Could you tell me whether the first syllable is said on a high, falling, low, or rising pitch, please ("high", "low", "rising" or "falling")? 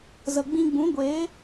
low